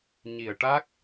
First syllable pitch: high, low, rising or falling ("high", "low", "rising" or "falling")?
low